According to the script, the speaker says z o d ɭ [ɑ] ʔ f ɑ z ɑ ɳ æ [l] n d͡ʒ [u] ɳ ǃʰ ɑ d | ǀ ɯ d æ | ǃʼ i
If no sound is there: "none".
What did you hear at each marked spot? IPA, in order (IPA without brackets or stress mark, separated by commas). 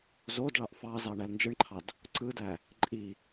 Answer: ɑ, l, ɯ